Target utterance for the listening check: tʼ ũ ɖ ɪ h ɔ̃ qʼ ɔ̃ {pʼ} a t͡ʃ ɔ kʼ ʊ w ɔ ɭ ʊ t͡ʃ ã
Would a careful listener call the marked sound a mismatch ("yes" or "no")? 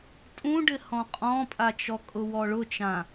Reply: no